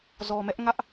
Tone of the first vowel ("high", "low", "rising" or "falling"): low